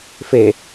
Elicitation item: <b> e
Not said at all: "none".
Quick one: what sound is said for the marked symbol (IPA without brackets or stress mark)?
f